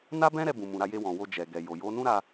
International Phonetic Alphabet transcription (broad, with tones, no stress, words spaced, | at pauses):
na˦bɛ̃˦ɾɛ˧ bũ˨mũ˨ ɾa˧je˧wɔ̃˨ wo˧d͡ʒɛ˨ ɡɛ˨jo˨jo˨˦nũ˦ ɾa˧